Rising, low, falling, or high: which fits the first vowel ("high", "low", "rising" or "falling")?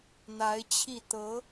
rising